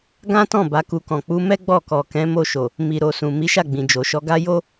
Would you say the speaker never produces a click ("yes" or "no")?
yes